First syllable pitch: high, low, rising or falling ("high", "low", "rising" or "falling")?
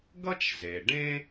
high